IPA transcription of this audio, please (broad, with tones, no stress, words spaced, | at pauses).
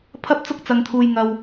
pʰɐ˥p̚t͡sʊ˥k̚t͡sɐ˧ŋ t̪ʰuː˧jŋɐ˧w